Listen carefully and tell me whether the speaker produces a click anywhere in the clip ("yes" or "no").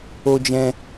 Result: no